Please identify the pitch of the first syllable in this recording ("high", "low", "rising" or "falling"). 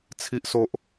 high